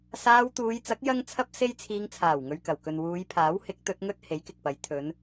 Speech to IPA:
saː˧wt̪uː˨˧jt͡sɐ˨˥k̚ jɐ˥ŋt͡sʰɐ˥p̚ se˥jt͡sʰiː˧ŋ t͡sʰaː˨˩wŋɵ˨ɥkɐ˨˩wkɵ˨n wuː˨˧jpʰaː˨˥whɪ˨˥k̚ t̪ɵ˨˥t̚ŋɵ˥t̚ he˨˥jkɪ˨k̚pɐ˨˧j t̪ʰɵ˨˧n

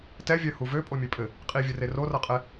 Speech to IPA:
tɛvʲœ huvø pʼomʲøpʼɘ | qʼivʲɘre rorɤqʼɛ

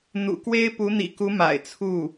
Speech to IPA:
n̪ṵ˨˩kwe˥ɪ̯ pu˧˥n̪ḭ˨˩ku˧˥ ma̰˨˩ɪ̯t͡sʰu˥˩

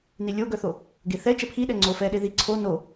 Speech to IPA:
nilʲoɡœθo | ɡeθɛ t͡ʃɛpʰiɗɛ ŋ͡ǀofɛɗe ði ǀʰo no

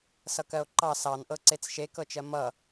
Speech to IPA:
sʌkɜo̯ǃɑ sɑn ʔɤǀet͡sʃe kɤt͡ʃɜmʌ

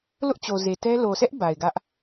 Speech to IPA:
lʊ˦ʔt͡ɕo˨ze˨ tɛ˦ lo˨sʰɛ˦ʔ ba˨ɪ̯ɡä˦ʔ

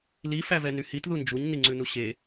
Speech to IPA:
li fævɛnyhit ðund͡ʒuɲ niŋ͡ǀʉnuɕe

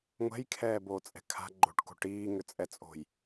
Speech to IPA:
ŋʷɛ̤jkʰɛːboːt͡sʼɛ̤ kʰa̤ ɡ͡ǃo̤ʈko̤ ʈiːŋʏt͡sʼɛt͡sʼo̤j

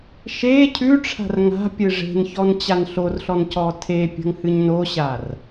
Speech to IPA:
ʃe cʰʉʈ͡ʂʰa̤r ŋa̤pʲɨ ʐe̤nçɔn t͡ɕanɬorɬɔn cɔtʰepʲə̤ŋ hɨɲnoɕar

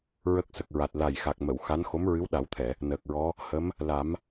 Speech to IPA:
ɹə˦˥k̚sə˨˩k̚ɹa˨˩t̚ la˨˩j xa˨˩k̚mə˨˩˨w xa˧˥n xo˧˥mɹɨ˧˥wɗa˨˩˦w t̪ʰɛ˨˩˨ | nəː˨˩k̚ɹɔ˧˥ | hə˧˥m | la˨˩˦m

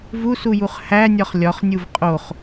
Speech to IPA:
vusujuχ hænʲɒχ lʲɒχnʲuv qʼoχ

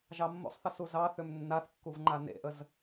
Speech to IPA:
ʒɑmːo̰sˤθə suzɑ θʏmnːaθkːuv ŋ͡ǃanḛʔəz

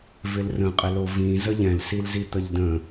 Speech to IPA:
vɪlrə̃qʼɪlo vĩ zəʎɛ̃lsilzi t̪əʎdə̃

